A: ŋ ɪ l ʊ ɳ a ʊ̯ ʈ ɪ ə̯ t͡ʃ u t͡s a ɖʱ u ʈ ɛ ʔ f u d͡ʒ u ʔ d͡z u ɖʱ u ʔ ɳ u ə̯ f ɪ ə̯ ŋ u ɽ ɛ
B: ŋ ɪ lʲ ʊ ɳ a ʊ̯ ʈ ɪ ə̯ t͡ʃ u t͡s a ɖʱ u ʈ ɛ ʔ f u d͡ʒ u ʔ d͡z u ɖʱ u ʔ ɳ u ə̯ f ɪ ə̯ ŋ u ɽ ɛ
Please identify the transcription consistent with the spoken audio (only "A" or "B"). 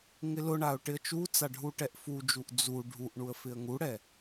A